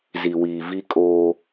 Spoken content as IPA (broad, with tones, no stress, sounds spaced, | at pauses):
z i˨ w iː˨ v i˦ kʼ oː˦